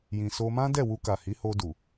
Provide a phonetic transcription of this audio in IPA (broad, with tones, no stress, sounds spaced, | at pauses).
j ĩ˨ s o˧ m ã˦ d ɛ˦˨ w u˧ k a˨ h i˨˦ h o˧ d u˨